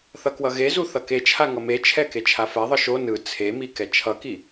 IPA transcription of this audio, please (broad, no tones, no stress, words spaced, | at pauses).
θʌkwʌɣezu θʌket͡ʃʰa ŋʌmet͡ʃʰɛ ket͡ʃʰafɛðˤɯ ʃo nɯ t͡sʰemi kɛt͡ʃʰʌki